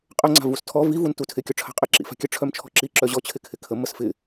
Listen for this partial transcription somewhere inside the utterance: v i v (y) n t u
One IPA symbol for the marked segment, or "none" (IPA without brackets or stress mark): u